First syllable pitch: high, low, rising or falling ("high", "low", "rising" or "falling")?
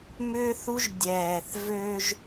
high